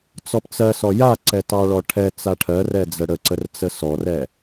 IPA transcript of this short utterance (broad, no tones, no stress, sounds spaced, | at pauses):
t͡s ɔ p t͡s ɜ s ɔ j a ǀ ɛ t ɑ ɭ ɔ ʈʰ ɛ t͡s a ʈʰ ɜ r ɛ d͡z ə ɽ ə ǀ ə r t͡s ə s ɔ r ɛ